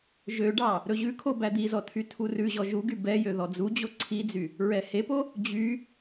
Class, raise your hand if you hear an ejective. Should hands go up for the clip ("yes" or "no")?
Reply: no